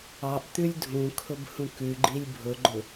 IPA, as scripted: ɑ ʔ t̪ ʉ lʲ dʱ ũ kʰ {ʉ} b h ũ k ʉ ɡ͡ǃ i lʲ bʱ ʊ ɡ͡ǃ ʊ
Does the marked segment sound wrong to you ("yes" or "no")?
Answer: yes